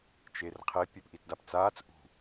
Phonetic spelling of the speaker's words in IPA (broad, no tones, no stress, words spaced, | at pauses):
t͡ʃerqʰepʲep ʔitdapt͡saːt͡s ʔṳ